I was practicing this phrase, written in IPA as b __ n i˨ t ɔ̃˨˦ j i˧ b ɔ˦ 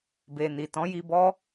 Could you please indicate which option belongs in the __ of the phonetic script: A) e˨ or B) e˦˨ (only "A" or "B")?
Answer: A